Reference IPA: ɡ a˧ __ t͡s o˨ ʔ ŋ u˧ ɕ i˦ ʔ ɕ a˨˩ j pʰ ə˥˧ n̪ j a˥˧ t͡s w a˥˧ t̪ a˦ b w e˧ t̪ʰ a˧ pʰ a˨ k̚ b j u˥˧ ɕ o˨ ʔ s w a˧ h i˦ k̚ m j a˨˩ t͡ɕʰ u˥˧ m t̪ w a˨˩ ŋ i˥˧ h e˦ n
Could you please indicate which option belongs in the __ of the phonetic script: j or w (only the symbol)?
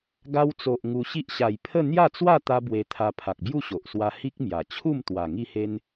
w